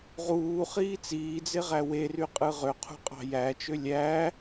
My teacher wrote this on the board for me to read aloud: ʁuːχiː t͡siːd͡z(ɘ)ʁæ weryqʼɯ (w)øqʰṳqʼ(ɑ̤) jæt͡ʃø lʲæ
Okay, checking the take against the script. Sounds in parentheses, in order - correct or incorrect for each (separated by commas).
incorrect, incorrect, correct